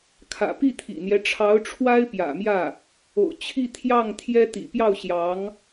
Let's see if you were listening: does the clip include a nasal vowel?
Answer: no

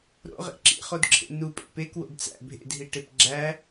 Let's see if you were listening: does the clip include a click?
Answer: yes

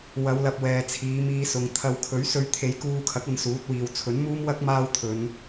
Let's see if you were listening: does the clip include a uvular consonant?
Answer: no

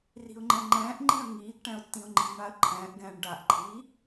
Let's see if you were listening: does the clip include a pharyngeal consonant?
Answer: no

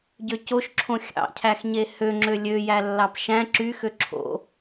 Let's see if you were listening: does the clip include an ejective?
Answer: no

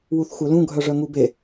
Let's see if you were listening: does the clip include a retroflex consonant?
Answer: yes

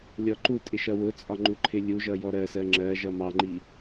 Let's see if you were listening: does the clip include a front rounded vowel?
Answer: no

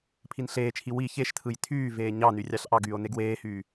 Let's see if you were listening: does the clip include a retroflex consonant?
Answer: no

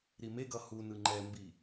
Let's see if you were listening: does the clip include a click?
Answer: yes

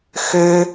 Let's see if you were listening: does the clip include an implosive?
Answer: no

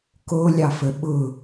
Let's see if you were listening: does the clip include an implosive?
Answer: yes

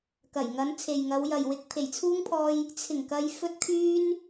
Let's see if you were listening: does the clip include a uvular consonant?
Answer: no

